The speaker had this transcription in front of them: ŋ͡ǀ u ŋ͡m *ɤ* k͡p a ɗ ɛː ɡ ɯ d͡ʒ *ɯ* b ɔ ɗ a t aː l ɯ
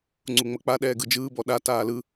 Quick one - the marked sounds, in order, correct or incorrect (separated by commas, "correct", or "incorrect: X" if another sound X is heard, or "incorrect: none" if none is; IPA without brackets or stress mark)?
correct, incorrect: ɯː